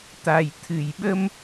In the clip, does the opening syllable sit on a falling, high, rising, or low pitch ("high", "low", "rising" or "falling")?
low